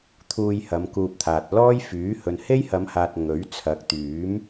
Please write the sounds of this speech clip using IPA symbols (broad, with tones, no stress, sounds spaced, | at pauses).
t̪ʰ uː˧ j h ɐ˨˧ m k uː˧ p̚ t̪ʰ aː˨ t̚ l ɔː˥ j f yː˨˥ h ɵ˨ n h e˥ j h ɐ˨˧ m h aː˨ t̚ ŋ ɵ˨˥ ɥ t͡sʰ ɐ˨˥ k̚ t̪ yː˨˥ m